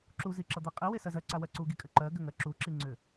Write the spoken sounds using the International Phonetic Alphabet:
ǁ u z i ǁ ʌ d̪ e qʼ i w e s ɜ z ɜ ǀ a w ɜ ǀ u ɡ i kʼ ʏ ǃ ɜ ɡ ʏ ŋ ɜ ǁ u ǁ i ŋ͡ǀ ʏ

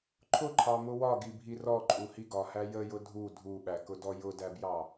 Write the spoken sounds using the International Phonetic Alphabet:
ǃʰ ʊ ǃʰ ɑ m ʊ w ɒ ɡ i bʱ i r ɔ ǃʼ u h i ɡ ɒ h æ j ə j ʊ dʱ u dʱ u ɓ æ k ʊ d ɔ j ʊ d æ b j ɑ

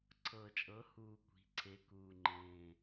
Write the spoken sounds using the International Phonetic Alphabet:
ǀʰ ɤ˨˩ t͡ʃʼ ɤ˩˥ h uː˨˩ kʷ i̤˩˥ ǀʰ e˩˥ k uː˨˩ ŋ͡ǃ ẽː˨˩

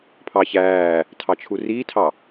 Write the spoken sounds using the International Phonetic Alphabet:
pʰ ɑ ç æː | tʰ ɑ t͡ʃʰ u r iː tʰ ɑ

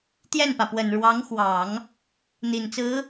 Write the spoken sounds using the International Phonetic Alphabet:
t̪ j ɛ˥˩ n p ä˩ p w ə˨˩ n ɻ w ɑ˧˥ ŋ x w ɑ˨˩˦ ŋ | n̪ i˨˩ n t͡s ɹ̩˧˥

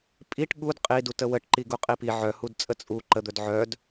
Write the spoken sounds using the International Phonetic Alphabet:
pʼ i ʈ ɠ u d qʼ i d u t ə w ə ʈ ǃ i ɡ u qʼ i p i ʕ œ h u d t͡sʼ ə t͡sʼ u ǃ ə d̪ œ d ʕ œ d

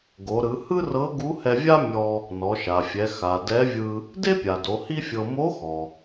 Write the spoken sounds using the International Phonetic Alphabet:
ɡ o˩˧ ɾ ɯ˩˧ h ɯ˥ r ɤ˧˥ ɡ u˧˥ h ɛ˧ vʲ a˥ mʲ ɔ˧ | n ɔ˩˧ ʃ a˩ fʲ ɛ˩˧ x a˩ d ɛ˧˥ vʲ ɯ˧ | d e˥ pʲ a˩ d o˩˧ h i˥ fʲ ɤ˧ m o˧˥ x ɔ˩

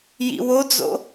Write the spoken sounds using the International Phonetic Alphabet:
j ḭ w o d͡z o̰

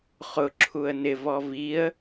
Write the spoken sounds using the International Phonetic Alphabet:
χ ʊ ǁʰ u ə̯ n ɪ v ɔ v i ə̯

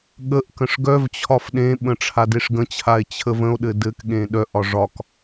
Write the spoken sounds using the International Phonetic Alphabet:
ɠ ə ʔ k ə̃ ʂ ɡ œ v t͡ɕʰ ɒ f ɗ ẽ ɓ ə̃ ʈ͡ʂʰ a d e ʂ ɡ ə̃ t͡ɕʰ a e̯ t͡ɕʰ ə v ə̃ o̯ ɗ ɘ d ɘ k ɠ ẽ ɗ œ ʔ ɒ ʐ ɒ k

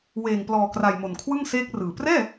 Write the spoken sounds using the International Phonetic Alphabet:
w eː˨˩ ŋ p l ɔː˨˩ k r a˨˩ j m o˨˩ n kʰ w ɯ˥˩ ŋ s eː˦˥ k̚ r ɯː˨˩ p r ɛː˥˩

